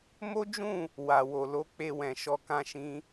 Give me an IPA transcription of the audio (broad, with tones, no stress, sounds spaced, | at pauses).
m o˦ d͡ʒ ũ˦˨ | w a˨ w o˨ l o˨˦ k͡p e˧ w ɛ̃˨ ʃ ɔ˧ k ã˦ ʃ ĩ˦